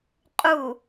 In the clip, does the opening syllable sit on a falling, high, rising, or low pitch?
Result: low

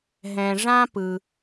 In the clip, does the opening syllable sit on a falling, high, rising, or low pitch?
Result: low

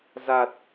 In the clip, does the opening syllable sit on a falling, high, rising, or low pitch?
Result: low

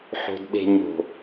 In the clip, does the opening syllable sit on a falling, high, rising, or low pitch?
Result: low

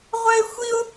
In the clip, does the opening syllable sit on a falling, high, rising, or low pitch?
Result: high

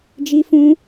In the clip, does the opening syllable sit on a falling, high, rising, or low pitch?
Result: high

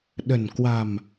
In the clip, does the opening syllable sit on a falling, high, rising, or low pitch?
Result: low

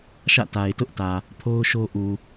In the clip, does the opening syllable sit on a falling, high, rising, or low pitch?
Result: falling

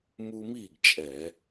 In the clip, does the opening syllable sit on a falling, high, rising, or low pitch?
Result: high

